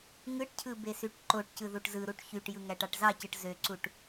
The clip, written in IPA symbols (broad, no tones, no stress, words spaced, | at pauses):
ŋɯʈcʰɯ besyʈǃoʈcɯ ðuʈzɯɾuʈ çyʈjɯ ŋæʈɑʈzɑcɯʈ zøǀuʈ